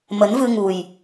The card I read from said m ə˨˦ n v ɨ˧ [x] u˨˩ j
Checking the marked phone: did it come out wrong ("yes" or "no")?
yes